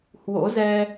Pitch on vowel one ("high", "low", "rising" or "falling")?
rising